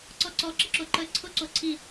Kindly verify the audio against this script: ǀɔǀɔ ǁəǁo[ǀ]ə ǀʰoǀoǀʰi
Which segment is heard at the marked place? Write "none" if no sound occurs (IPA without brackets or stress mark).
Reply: ǃ